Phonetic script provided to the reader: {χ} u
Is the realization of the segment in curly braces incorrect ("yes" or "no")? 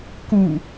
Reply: yes